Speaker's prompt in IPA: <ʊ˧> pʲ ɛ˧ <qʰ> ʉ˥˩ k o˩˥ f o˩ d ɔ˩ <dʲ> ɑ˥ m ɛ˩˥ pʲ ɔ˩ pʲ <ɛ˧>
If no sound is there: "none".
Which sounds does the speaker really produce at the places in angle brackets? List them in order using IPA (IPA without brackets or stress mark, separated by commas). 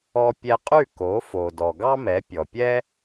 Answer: ɔ˧, qʼ, ɡ, ɛ˥